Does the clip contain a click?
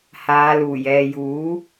no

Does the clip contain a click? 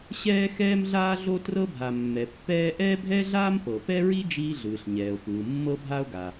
no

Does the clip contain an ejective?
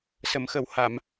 no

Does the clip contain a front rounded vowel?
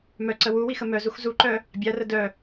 yes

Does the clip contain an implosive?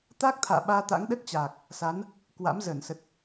yes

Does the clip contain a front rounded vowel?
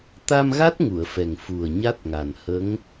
no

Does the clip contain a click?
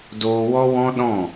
no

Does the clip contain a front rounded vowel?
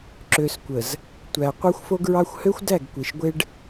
yes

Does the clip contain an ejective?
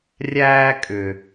yes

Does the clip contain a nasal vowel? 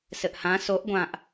yes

